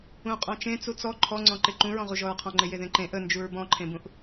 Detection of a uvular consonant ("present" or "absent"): present